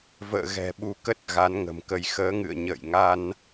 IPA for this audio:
v ə̰ː˧˨ ɣ ɛ̤˨˩ ɓ u˨˦ k ə˦˥ t̚ ɣ a˨˦ n ŋ ə̤˨˩ m k ə˧ j x əː˨˦ ŋ ɨ̰˧˨ ə̯ ɲ ə̰ː˧˨ j ŋ a˧ n

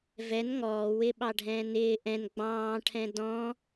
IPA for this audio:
v ɛ n ŋ ɔː w ɪ ɓ ɑ ɖʱ ɛ̃ː n ɪː ʔ ɛ̃ n ɡ͡b ɑ̃ː ʈʰ ɛ̃ d ɔ̃

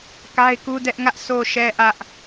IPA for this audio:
k a˦ ɪ̯ k u˦ d ɛ˦ ʔ ŋ ä˦ ʔ sʰ o˨ ʃ ɛ˨ ʔ ä˦ ʔ

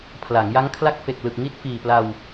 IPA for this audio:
pʰ l a˩˦ ŋ j a˦˥ ŋ kʰ l a˦˥ k̚ f e˨˩ k̚ l ɯ˨˩ k̚ ŋ i˦˥ t̚ f iː˨˩ p l a˧ w

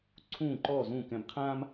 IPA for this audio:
ǀʰ ũː˥˩ ǃ ɔː˥˩ z ũː˥˩ k ɛ̃˧ b qʰ ãː˥ m

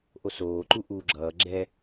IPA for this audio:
ʔ o s oː ǃ u ʔ uː ɡ͡ǁ ʌː ɡ͡ǁ ɛ

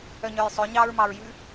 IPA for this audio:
œ ɲ œ j sˤ ø ɲ ɑ ɹ m ɑ ɹ j ʉ

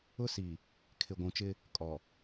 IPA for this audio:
ʊ˦ s i˨ | kʰ ɪ˨ ɡʷ ũ˨ t͡ʃ ɪ˦ | kʼ ɔ˨

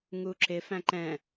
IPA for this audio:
ŋ u ǁ ɪ f æ̃ ǃ ɛ̃

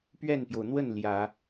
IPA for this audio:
p ɥ ɛ˥˩ n p j o˩ ʊ̯ n̪ w ə˥˩ n l j ä˨˩˦

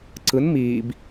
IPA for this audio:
ǀ ɯ n m iː b

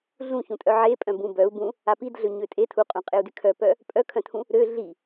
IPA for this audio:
ɮ ũ ç ũ tʼ œ ʕ e pʼ œ̃ b ũ b œ u̯ b ũ | a p i d ɮ ø ɲ ø tʼ e tʰ u qʼ ũ qʼ e u̯ d y kʰ œ p œ | pʼ œ kʰ œ̃ tʰ ũ | ɾ ø ɮ i

